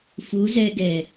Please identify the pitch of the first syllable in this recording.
rising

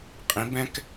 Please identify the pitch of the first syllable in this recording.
rising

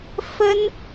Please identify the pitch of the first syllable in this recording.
high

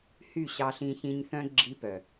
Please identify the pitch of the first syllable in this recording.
falling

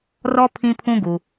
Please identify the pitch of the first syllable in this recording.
high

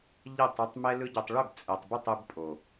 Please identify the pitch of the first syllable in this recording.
falling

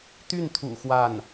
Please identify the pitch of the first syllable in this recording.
falling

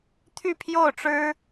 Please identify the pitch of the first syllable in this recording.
falling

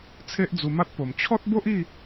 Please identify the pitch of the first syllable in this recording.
high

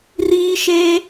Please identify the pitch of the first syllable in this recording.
high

